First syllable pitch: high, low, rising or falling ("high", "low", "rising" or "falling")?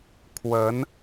rising